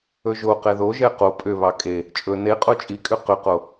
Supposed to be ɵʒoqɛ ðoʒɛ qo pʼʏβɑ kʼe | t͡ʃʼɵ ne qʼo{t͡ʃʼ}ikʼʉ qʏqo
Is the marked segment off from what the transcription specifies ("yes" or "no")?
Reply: no